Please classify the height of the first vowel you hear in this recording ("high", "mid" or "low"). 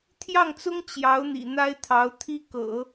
low